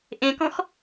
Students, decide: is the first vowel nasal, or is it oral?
nasal